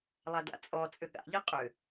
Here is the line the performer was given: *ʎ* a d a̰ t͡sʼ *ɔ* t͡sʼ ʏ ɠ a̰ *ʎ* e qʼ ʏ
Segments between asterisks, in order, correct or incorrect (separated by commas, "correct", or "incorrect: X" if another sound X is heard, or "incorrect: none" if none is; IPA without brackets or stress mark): incorrect: lˠ, correct, correct